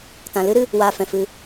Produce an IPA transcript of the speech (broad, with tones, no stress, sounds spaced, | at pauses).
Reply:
t ã˨ l ɨ˦ ɾ ɨ˧ | w aː˧ f ɛ̃˨ f ɨ˧